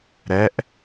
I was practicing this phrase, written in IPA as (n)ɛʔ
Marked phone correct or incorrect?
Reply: incorrect